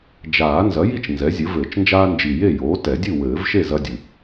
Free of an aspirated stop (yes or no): yes